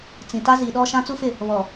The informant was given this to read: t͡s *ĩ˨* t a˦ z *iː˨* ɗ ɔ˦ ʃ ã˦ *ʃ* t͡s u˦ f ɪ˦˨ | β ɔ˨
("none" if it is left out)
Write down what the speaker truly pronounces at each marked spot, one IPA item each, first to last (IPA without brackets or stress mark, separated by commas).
ĩ˨, i˨, none